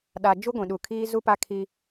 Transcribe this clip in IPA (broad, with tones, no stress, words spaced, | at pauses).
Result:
ɗa˨d͡ʒu˦ ɡʷĩ˨ ɗu˨kʰiː˦ zu˦pa˦ kʰi˦